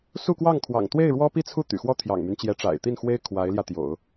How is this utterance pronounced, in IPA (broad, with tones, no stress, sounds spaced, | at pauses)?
s u˥˧ k w ɑ˥˩ ŋ kʰ w ɑ̰˨˩ ŋ t̪ w e˥˩ ɪ̯ ɻ w ɔ˥ p i˥˧ t͡sʰ u˥˩ t̪ y̰˨˩ x w ɔ˥˩ t̪ʰ j ɑ̰˨˩ ŋ m y˦ n t͡ɕ j ɛ˧˥ ʈ͡ʂ a̰˨˩ ɪ̯ t̪ i˥˩ n x w e˥ ɪ̯ kʰ w a˧˥ ɪ̯ l j ä˧ t̪ j o̰˨˩˦ ʊ̯